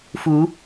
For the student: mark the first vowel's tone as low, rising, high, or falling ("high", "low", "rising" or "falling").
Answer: rising